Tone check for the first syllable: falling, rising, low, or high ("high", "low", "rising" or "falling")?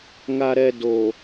low